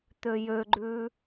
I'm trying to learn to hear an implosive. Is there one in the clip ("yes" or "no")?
no